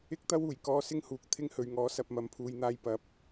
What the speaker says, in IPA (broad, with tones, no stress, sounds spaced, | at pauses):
ɪ˥ k̚ t̪ ɐ˥ w uː˨˩ j k ɔː˧ s ɪ˥ ŋ h uː˨ k̚ t̪ʰ ɪ˥ ŋ h ɵ˨ ɥ ŋ ɔː˨˥ s ɐ˨ p̚ m ɐ˨ m pʰ uː˨ j n̪ aː˧ j p ɐ˨˥ p̚